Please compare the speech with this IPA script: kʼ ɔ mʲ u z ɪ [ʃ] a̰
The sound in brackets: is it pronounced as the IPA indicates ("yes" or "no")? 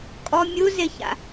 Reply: no